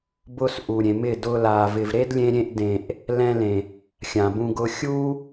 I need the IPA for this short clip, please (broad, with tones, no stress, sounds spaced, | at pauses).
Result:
b ʊ˧ s ʔ u˨ ɾʲ ẽ˨ m ɪ˦˨ d ʊ˧ l a˨ v ɪ˨ v ɾ e˦ d lʲ ẽ˧ ɾʲ ẽ˧ ʔ d ẽ˨ ʔ | l ɛ̃˧ l ẽ˨ | xʲ ã˨ b ũ˧ ɡ ʊ˧ xʲ u˦